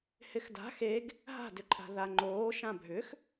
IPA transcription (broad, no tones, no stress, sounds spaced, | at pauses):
h ɪ x d a̤ x e ɡ | ɦ a̤ d ʏ ǃʼ a̤ ð a ŋ͡ǃ oː ʃ ã bʱ ʏ x